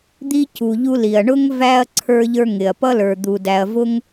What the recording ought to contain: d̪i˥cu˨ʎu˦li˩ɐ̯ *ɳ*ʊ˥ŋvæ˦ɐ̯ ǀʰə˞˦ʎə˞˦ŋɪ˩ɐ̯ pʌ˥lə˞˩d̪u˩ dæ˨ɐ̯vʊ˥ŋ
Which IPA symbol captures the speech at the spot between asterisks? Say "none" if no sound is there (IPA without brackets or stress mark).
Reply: ɳ